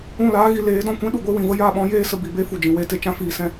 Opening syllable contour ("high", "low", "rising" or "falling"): falling